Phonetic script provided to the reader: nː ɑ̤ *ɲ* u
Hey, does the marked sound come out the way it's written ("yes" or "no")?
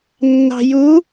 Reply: no